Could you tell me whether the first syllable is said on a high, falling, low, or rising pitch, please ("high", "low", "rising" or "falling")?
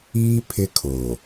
high